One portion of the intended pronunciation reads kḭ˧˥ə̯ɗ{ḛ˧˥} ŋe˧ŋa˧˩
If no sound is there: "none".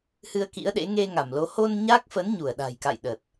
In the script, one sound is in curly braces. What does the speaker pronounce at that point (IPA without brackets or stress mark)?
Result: ḛ˧˥